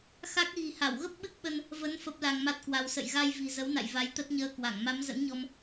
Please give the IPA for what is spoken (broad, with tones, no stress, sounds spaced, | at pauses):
x a˦˥ k̚ ɣ i̤˨˩ h a˧˩ w ɣ ə˦˥ p̚ ɓ ɨ˦˥ k̚ ɓ ə˧ n | v ə˨˦ n f ə˦˥ p̚ l a˧ ŋ m a˦˥ t̚ k w a˧ w s ə̰˧˨ j ɣ a˧ j v i̤˨˩ z ə˨˦ w n a̰˧˨ j v a˨˦ j t̪ ə˦˥ t̚ ɲ əː˧ k w a˧˩ ŋ m a˨˦ m z ə̰˧˥ n ɲ ɔ˧ m